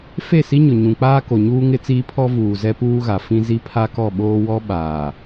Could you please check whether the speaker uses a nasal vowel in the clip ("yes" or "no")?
yes